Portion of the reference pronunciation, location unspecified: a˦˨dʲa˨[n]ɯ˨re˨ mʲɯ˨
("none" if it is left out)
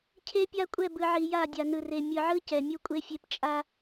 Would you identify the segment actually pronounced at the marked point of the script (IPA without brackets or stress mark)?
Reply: n